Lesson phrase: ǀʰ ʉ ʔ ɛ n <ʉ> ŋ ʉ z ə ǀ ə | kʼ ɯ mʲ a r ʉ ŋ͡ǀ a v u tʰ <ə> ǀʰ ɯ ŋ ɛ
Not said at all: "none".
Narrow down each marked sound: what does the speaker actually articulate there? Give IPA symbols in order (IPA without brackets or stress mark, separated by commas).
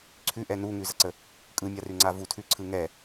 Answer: u, ʉ